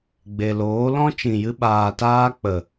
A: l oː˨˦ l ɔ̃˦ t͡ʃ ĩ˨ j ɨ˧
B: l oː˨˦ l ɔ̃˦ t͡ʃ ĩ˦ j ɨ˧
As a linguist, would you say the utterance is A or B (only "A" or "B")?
A